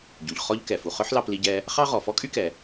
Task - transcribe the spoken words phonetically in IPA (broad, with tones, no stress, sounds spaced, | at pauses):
ɟ u˩ ʎ χ ɔ˥ ʎ k ɛ˩ f u˩ χ œ˥ ħ l ɑ˧ p l i˧ ɟ ɛ˧ | χ ɑ˥ ʁ ɔ˩ f ɔ˥ kʼ y˥ k ɛ˩